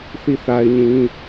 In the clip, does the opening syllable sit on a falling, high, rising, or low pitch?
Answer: falling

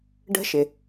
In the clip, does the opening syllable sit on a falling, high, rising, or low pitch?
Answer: high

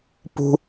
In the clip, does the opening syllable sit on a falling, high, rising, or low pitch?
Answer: high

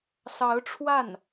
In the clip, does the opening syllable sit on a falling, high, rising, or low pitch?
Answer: rising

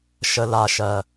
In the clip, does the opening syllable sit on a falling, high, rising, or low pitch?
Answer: low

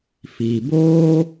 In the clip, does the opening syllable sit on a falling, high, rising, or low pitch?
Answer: low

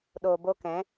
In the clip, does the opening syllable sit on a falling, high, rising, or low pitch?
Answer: low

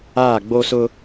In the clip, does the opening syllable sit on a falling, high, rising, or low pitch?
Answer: falling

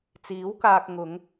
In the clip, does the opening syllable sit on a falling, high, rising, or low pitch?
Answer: rising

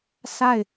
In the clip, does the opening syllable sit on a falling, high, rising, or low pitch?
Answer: falling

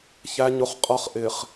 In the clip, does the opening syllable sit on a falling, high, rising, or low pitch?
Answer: low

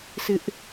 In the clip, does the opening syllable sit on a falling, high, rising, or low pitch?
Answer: high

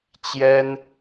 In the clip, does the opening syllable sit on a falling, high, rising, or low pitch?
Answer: high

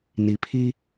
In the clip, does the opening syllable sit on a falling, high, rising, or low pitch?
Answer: low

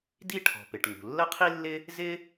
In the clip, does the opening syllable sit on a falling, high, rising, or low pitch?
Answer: high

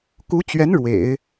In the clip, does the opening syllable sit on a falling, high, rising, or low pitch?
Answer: rising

